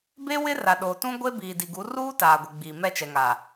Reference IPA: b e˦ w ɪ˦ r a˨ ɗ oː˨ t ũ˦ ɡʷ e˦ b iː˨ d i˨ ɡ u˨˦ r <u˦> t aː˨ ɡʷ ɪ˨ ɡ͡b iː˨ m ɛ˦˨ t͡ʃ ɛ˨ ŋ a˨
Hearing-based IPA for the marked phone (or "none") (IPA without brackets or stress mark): uː˦